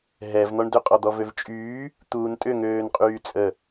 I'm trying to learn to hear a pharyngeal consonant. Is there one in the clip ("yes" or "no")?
no